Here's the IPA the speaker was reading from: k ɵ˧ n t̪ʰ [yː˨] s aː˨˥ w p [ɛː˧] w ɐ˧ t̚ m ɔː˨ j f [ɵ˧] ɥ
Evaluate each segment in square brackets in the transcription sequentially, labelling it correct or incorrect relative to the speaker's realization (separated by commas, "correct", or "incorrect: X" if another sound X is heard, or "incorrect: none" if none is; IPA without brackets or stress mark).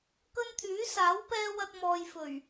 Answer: incorrect: yː˨˥, correct, incorrect: ɵ˨˩